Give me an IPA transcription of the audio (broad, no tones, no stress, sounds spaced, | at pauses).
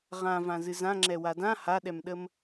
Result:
ʁ ã v ã z ɨ z ã ŋ͡ǁ ɛ w a d ã h a ɗ ɛ m ɗ ə m